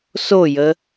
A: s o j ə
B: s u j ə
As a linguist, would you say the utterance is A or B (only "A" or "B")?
A